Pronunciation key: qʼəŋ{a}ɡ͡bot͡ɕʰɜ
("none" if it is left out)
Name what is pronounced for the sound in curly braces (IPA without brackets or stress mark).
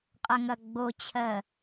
ɐ